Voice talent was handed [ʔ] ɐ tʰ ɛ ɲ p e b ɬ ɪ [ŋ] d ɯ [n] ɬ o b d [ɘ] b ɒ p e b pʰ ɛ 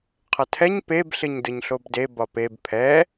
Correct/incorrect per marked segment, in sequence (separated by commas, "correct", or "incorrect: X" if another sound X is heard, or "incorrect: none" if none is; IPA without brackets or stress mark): incorrect: qʰ, incorrect: ɲ, incorrect: ɲ, incorrect: e